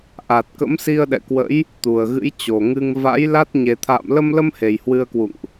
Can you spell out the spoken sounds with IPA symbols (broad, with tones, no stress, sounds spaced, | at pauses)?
ʔ a˨˩ t̚ k ə̰˧˥ m s i˧ ə̯ ɗ ɛ̰˧˨ k w ə̰˧˥ j | t̪ u˨˩ ə̯ ɣ ɨ̰˧˥ j t͡ɕ o˨˩ ŋ ɨ˧ ŋ v a̰˧˥ j l a˦˥ t̚ ɲ e˨˩ t̪ʰ a̰ː˧˨ m l ə˧ m l ə˧ m h e˨˩ j h w ɨ˧ ə̯ k w ṵ˧˨ ŋ ʔ